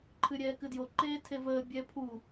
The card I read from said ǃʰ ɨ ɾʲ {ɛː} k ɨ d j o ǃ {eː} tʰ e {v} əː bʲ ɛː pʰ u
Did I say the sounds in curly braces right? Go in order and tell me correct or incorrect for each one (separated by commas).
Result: correct, correct, correct